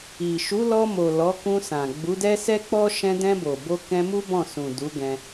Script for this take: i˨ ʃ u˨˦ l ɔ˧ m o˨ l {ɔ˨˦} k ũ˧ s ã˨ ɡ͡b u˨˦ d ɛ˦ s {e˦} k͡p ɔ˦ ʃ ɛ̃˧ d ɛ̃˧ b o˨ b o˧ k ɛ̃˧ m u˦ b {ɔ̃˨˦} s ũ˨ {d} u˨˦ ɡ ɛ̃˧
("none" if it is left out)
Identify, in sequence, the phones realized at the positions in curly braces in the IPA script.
ɔ˨˦, ɛ˦, ɔ̃˦˨, d

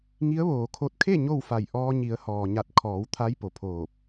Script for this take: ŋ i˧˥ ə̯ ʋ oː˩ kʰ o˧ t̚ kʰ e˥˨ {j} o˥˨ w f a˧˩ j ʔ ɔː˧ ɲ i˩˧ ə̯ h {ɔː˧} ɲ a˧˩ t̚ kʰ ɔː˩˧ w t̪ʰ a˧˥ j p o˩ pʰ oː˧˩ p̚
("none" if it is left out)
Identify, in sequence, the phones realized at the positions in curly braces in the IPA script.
ɲ, ɔː˩

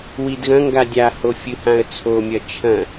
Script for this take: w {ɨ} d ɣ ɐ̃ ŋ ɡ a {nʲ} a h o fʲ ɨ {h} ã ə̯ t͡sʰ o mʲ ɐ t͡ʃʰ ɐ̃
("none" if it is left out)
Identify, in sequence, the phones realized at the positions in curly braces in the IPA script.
i, dʲ, h

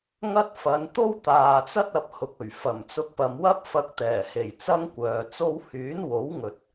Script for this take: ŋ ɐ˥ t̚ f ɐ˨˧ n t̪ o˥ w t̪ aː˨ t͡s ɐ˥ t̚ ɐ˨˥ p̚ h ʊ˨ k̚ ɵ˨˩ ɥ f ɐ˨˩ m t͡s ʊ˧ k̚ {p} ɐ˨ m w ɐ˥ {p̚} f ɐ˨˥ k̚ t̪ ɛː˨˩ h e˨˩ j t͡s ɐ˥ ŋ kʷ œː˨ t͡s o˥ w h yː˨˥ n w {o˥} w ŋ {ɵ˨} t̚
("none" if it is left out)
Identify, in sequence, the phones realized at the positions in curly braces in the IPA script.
p, p̚, o˨˥, ɵ˨

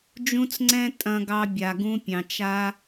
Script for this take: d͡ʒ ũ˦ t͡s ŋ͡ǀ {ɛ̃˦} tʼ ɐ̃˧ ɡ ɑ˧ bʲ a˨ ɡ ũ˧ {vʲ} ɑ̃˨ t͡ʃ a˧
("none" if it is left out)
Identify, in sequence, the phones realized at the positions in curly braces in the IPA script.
ɛ̃˦, pʲ

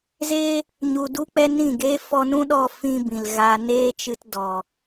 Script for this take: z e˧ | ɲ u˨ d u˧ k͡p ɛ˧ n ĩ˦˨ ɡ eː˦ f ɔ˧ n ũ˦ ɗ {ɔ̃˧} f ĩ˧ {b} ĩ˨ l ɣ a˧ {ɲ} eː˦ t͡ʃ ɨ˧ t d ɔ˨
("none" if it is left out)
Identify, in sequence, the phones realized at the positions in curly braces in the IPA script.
ɔ˧, b, n

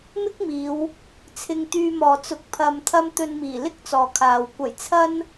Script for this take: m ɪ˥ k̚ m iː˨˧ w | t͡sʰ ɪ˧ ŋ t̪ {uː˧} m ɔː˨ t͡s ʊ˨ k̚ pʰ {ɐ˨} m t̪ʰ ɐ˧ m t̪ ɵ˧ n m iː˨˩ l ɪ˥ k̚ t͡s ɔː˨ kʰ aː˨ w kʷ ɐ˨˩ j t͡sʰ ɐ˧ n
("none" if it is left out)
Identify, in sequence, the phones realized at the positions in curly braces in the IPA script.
yː˧, ɐ˨

